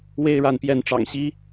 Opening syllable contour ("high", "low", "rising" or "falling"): high